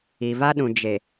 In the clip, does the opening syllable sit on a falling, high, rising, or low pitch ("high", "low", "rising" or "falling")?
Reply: low